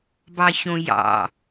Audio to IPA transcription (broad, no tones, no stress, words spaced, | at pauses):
bɑçõjɑ̰